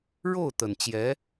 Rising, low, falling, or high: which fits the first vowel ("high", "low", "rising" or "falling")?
falling